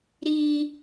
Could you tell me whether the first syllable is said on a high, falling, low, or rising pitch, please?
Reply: high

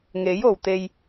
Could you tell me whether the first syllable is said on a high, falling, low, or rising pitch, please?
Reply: rising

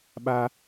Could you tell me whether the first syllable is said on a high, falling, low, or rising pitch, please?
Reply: high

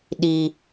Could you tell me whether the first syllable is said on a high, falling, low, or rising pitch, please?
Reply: high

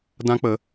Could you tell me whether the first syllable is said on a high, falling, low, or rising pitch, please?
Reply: high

